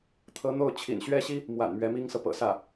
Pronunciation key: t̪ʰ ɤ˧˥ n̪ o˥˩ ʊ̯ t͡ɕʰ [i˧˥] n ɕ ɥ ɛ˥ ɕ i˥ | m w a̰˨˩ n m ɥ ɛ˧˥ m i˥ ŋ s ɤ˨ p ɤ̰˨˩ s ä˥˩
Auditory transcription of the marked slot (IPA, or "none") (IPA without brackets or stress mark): ḭ˨˩